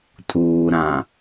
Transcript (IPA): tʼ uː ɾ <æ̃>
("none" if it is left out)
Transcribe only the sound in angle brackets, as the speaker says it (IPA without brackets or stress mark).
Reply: ã